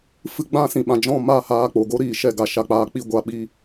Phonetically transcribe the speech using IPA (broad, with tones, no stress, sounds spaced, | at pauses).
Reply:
f ɨ˧ ɡ͡b ã˦˨ s ĩ˨ ɓ ã˨ d͡ʒ ɔ̃˦˨ m a˦˨ h aː˧ k͡p o˨ ɡ o˦ ɾ iː˨ ʃ ɛ˦˨ ɡ a˧ ʃ a˦ k͡p aː˦ k͡p i˦ ɡʷ a˧ ɓ iː˦